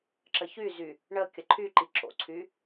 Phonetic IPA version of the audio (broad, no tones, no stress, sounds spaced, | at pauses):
ǁ ə ç y z y | ɳ ə kʲ ə ǃʰ y ǃ i ǁ o̰ ǀʰ y